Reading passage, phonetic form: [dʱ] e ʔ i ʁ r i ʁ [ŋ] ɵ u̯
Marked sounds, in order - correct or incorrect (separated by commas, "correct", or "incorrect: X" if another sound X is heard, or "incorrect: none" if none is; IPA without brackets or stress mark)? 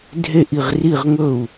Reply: correct, correct